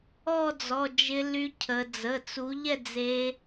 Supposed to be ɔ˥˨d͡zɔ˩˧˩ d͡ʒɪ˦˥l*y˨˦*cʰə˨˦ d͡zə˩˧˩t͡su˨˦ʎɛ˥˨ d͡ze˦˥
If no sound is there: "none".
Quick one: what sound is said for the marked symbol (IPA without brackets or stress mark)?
y˦˥